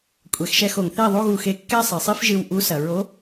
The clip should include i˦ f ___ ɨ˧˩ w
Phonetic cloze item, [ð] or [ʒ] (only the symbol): ʒ